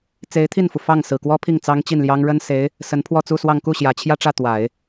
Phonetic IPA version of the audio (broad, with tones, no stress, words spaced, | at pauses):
t͡se˧˥ɪ̯t̪ʰi˥˩nfu˩ fɑ˥˩ŋ sɹ̩˨˩kwɔ˥pʰi˥˩ŋ t͡sɑ˥ŋt͡ɕi˥˩nljɑ˥ŋ ɻə˥nse˧˥ɪ̯ | sə˧˥npʰwɔ˥˧t͡su˥˧swɑ˥˧ŋ ku˥˩ɕjä˨˩t͡ɕʰjä˥˧ʈ͡ʂä˥˩ t̪wa˨˩˦ɪ̯